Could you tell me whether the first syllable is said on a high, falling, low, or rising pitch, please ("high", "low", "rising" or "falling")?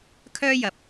high